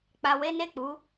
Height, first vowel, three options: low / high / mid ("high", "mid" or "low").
low